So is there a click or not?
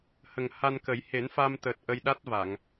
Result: no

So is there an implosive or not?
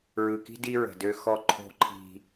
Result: no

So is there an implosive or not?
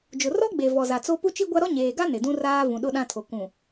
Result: yes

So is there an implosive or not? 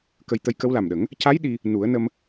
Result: yes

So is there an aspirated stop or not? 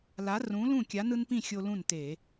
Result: no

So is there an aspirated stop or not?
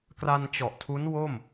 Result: yes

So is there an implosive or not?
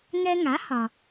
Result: no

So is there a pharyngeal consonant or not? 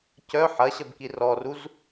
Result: yes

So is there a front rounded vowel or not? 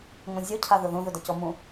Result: no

